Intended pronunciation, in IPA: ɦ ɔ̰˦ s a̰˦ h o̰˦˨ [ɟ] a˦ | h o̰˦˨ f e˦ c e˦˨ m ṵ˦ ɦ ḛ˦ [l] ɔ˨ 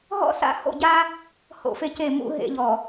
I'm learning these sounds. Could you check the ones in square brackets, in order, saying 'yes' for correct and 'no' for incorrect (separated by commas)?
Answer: yes, no